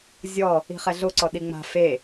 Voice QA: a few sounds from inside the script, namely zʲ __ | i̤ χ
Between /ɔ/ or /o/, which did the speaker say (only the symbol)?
ɔ